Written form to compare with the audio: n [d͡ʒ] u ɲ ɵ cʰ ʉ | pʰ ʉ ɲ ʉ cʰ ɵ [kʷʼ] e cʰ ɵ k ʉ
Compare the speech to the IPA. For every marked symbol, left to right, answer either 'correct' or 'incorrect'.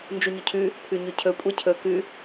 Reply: correct, correct

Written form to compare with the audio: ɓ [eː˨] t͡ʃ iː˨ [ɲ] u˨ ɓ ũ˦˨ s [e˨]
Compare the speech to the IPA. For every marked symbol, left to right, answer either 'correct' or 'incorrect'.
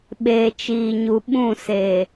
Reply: correct, correct, correct

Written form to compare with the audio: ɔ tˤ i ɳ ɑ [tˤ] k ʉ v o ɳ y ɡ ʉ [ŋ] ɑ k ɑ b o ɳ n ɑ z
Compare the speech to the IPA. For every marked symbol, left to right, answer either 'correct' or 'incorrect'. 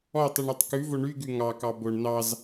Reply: correct, correct

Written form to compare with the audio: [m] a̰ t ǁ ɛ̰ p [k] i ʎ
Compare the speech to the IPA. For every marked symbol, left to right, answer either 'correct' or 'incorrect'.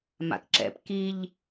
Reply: correct, correct

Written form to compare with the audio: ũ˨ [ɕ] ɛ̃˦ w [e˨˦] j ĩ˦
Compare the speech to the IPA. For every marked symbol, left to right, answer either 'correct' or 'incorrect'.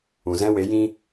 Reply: incorrect, correct

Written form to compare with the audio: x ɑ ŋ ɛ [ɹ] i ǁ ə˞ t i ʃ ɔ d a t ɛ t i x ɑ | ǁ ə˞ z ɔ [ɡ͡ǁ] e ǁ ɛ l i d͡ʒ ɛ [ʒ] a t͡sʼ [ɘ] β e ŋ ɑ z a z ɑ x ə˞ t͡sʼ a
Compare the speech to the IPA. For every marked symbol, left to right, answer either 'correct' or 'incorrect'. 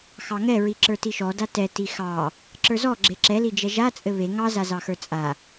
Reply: correct, correct, correct, correct

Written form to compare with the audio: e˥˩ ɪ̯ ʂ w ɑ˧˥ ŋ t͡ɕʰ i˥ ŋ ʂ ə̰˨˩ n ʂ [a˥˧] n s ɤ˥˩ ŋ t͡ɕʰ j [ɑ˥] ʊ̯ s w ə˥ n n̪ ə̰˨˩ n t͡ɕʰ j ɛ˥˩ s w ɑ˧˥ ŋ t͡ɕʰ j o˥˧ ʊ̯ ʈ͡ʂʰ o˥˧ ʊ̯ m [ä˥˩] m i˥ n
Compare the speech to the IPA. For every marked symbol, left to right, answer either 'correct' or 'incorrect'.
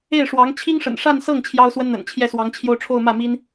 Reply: correct, correct, correct

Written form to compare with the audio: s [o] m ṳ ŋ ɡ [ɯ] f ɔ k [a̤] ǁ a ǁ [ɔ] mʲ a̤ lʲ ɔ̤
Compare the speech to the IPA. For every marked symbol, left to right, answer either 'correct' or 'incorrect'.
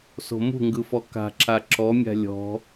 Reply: incorrect, correct, correct, correct

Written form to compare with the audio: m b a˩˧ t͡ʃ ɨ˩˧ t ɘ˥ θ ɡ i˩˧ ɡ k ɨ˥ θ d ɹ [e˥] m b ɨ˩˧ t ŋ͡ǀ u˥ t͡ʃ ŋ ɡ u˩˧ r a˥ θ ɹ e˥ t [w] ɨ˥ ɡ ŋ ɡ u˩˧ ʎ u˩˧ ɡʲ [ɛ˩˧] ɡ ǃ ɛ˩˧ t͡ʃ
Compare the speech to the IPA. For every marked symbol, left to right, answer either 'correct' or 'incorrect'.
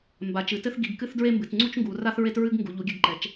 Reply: correct, incorrect, incorrect

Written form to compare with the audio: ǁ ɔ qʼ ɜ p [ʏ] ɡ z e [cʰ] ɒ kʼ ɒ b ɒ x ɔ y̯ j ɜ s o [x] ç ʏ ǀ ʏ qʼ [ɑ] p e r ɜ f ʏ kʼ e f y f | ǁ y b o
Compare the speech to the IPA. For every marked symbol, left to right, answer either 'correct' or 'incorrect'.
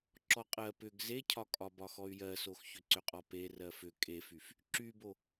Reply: correct, correct, correct, incorrect

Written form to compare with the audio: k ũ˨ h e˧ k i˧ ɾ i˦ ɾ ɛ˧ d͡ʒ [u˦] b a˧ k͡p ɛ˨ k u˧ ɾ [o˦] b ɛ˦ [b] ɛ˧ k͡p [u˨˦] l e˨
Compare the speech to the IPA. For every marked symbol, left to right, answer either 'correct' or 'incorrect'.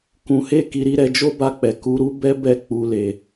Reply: incorrect, incorrect, correct, incorrect

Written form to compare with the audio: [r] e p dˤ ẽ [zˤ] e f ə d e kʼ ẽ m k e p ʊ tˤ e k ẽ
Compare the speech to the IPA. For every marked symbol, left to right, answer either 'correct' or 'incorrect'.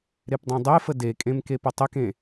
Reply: incorrect, incorrect

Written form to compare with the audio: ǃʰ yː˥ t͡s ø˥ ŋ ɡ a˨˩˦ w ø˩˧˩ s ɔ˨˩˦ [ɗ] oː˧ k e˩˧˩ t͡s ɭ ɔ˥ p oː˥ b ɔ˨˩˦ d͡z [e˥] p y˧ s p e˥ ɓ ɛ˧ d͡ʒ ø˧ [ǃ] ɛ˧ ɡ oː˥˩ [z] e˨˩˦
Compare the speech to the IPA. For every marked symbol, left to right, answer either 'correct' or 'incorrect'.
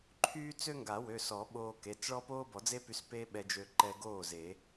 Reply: incorrect, correct, correct, correct

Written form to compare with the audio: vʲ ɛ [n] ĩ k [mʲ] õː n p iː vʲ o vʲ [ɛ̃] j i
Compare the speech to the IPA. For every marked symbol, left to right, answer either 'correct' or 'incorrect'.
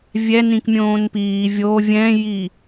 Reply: correct, correct, correct

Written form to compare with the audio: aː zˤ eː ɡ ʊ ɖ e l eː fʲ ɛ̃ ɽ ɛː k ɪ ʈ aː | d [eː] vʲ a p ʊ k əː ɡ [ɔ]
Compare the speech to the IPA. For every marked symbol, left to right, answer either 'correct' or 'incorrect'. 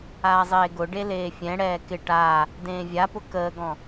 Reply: incorrect, incorrect

